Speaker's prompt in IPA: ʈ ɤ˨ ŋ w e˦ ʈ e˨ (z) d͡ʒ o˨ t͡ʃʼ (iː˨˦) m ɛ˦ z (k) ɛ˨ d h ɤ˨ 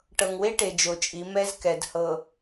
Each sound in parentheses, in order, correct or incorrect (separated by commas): incorrect, incorrect, correct